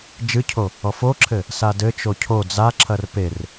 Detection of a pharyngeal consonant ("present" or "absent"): absent